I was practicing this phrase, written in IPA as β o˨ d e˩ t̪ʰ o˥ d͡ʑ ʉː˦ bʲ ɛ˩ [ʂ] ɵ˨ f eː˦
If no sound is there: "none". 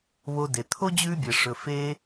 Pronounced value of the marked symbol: ʂ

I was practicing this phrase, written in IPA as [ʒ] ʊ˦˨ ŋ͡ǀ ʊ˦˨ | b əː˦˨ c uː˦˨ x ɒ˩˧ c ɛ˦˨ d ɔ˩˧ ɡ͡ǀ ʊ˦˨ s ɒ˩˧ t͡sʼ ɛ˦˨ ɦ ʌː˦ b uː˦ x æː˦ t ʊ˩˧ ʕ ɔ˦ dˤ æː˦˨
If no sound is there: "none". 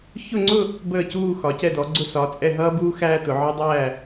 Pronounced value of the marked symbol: ç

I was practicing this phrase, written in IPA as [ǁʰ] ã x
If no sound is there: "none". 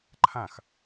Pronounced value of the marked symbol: ǃʰ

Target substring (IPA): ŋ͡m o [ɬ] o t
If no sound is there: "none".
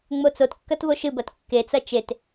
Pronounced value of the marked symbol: t͡s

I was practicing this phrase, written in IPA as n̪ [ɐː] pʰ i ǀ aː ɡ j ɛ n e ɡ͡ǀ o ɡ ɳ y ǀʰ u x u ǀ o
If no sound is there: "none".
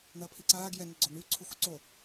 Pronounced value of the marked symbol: ɐː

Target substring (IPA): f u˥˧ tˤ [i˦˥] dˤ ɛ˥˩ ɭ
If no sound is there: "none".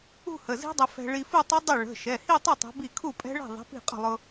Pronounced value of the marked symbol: i˦˥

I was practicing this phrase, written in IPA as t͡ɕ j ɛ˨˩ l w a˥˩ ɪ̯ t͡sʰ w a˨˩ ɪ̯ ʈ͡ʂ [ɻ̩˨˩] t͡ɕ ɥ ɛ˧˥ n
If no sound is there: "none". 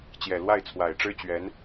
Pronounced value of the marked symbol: ɻ̩˥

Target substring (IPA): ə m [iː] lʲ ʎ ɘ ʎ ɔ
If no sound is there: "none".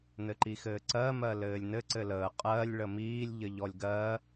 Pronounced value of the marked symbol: iː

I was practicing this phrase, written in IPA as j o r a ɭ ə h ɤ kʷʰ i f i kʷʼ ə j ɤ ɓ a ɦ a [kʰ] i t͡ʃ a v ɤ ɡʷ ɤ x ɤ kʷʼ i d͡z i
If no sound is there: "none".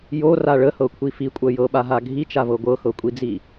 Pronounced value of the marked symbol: ɡʱ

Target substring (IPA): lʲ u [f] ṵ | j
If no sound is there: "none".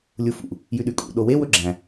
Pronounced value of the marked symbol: f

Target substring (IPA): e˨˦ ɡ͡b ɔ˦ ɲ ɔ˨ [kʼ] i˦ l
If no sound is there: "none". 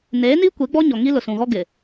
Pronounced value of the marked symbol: ŋ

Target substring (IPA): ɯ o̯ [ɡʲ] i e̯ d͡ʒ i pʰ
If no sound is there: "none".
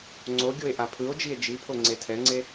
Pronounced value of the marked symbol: d͡ʒ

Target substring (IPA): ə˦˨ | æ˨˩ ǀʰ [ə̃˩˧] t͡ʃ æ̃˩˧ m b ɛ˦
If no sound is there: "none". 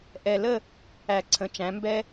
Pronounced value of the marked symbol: ə̃˩˧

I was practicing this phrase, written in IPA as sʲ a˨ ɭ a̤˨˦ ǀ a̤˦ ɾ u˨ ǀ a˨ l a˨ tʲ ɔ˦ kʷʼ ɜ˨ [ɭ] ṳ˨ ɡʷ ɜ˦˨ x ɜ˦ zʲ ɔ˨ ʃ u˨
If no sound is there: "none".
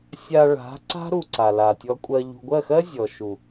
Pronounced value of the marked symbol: ʎ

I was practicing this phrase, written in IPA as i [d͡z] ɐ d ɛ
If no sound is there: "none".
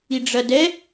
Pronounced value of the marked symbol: ɖ͡ʐ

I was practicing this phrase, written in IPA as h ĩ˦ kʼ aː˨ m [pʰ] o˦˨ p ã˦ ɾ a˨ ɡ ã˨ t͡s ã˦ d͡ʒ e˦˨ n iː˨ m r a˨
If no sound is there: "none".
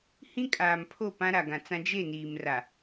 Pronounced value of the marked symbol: pʰ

